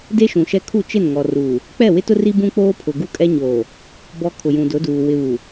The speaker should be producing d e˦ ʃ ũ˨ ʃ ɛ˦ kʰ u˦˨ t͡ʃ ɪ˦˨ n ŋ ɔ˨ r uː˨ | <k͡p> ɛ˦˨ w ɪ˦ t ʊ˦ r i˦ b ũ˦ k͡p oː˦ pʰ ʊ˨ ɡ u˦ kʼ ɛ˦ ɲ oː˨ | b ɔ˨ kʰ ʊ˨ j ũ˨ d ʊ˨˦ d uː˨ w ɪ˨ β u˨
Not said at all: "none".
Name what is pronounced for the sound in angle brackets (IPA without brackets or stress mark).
k͡p